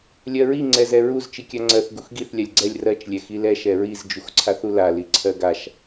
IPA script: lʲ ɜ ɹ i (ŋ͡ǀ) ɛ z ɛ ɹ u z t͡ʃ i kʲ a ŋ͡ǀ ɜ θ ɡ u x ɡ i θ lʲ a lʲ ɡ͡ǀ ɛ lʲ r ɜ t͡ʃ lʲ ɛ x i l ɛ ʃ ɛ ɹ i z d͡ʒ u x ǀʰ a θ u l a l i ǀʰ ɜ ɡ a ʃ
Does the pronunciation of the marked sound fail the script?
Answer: no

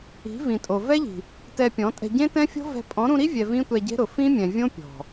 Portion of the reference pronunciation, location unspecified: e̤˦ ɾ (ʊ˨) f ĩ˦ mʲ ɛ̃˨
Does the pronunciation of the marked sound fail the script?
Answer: no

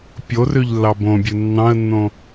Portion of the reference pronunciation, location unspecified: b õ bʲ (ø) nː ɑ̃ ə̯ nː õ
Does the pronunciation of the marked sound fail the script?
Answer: yes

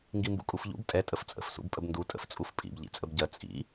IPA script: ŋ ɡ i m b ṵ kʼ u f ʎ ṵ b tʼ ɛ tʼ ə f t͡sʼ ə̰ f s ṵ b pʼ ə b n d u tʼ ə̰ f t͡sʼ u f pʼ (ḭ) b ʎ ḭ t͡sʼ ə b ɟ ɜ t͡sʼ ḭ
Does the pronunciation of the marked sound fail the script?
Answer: no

